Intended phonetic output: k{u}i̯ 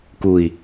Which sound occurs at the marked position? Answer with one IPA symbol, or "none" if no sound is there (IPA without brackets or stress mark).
u